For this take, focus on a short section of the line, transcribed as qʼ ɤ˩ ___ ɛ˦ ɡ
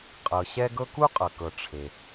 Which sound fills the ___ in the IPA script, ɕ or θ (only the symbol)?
ɕ